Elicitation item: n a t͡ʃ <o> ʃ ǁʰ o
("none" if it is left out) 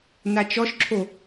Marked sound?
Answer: ɔ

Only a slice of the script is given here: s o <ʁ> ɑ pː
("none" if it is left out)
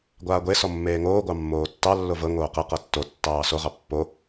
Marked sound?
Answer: ʁ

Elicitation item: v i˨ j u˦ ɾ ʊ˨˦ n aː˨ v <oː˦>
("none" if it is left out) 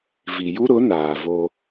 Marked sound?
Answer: o˦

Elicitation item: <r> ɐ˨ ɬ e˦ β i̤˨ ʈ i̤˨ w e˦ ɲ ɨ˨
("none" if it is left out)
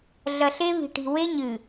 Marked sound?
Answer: ɮ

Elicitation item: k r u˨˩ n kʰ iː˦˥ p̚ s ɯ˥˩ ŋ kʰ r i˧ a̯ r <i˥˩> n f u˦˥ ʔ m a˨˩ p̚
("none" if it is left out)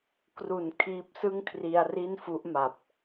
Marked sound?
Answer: i˥˩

